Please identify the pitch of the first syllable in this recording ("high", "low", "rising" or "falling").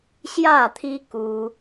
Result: falling